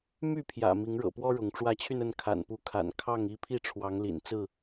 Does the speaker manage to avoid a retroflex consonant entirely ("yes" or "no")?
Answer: no